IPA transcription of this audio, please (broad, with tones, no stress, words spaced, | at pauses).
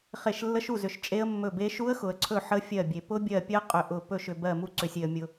χe˦˨ʃlːə˦˥ʃ u˦˨zʏ˨ʃ t͡ʃʼe˦˥ə̯mːɵ˦˨be˦˥ ʃu˦˥ə̯xʊ˨ə̯ǀʰɵ˦˨ ħə˦˥fʲɜ˦˨bʲe˨ pʊ˦˥bʲɜ˦˨pʲɜ˦˥ qʼʏ˦˨ʔʊ˦˨ pɵ˦˨ʃʏ˨ bɜ˦˨ mu˦˨ǀʏ˨sʲe˨ə̯ mʲʊ˨